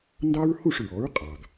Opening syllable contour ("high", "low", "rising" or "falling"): high